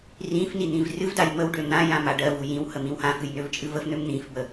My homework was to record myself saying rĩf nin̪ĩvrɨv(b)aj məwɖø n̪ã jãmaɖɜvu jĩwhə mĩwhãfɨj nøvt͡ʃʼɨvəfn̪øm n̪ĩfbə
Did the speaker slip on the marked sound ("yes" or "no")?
yes